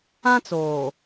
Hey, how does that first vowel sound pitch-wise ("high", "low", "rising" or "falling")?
high